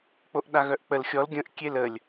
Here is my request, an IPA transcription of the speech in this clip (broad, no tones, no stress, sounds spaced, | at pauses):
k͡p o ʔ ɗ a ɣ œ ʔ k͡p ə l xʲ ɔ l ɡʲ ə̃ ʔ kʲ e l ə lʲ